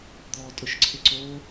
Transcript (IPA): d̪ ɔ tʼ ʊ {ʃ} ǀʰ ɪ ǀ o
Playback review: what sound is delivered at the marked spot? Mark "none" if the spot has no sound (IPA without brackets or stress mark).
ʃ